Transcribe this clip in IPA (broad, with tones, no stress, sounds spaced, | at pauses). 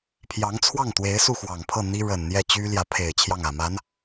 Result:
pʰ j ɑ˧˥ ŋ t͡sʰ w ɑ˥˩ ŋ t̪ w e˧˥ ɪ̯ s u˥˩ x w ɑ˨˩ ŋ pʰ ɤ˥˩ n̪ i˥ ɻ ə˨˩ n n̪ j ɛ˥˩ t͡ɕ y˥ l j ä˧˥ pʰ e˨˩ ɪ̯ t͡ɕʰ j ɑ˥˩ ŋ ä˨˩ m a˧˥ n